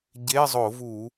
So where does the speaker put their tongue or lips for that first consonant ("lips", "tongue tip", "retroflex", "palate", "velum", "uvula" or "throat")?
palate